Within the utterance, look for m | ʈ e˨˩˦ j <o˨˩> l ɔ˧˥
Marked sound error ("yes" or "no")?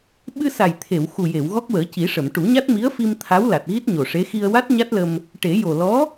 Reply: no